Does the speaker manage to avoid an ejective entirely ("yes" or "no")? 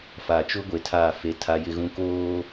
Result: yes